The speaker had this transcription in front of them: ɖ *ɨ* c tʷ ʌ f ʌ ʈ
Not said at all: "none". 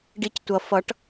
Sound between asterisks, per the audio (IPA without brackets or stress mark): i